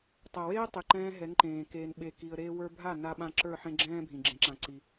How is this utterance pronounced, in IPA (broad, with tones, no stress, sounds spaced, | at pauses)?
tˤ ɜ˨ w eː˦ tˤ i˨ ǃ ɛ̃ː˧ ɦ ɛ˨˦ ŋ ǃ ẽː˨ k eː˧ n ɓ e˧ k i˧ ə̯ ɾ eː˧ w ə˞˧ bʱ a˦˨ n a˧ ɓ ã˧ ǁ ə˞˦˨ ħ ẽ˦ ɡ͡ǁ ɛ̃ː˦ bʱ ĩ˨ ɡ͡ǁ ẽ˧ ǁ ã˧ ǀ i˧